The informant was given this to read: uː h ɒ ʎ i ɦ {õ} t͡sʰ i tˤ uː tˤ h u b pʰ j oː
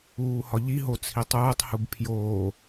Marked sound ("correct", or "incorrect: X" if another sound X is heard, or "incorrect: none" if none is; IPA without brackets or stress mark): incorrect: o